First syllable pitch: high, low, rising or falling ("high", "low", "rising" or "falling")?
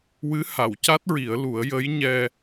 rising